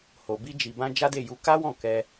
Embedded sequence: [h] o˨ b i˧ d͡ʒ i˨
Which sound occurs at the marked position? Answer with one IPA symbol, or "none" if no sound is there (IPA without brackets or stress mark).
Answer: h